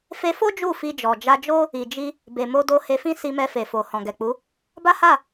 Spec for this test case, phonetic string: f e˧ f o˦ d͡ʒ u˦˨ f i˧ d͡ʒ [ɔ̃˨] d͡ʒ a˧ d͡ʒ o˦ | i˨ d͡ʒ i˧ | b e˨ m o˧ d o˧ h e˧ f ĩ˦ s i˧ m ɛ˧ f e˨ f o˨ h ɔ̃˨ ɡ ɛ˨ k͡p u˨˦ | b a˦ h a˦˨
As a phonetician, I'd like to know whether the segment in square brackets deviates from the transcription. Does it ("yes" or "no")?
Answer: yes